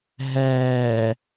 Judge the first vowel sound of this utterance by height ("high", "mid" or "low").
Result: low